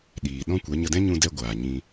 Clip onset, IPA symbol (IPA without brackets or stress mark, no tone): ɗ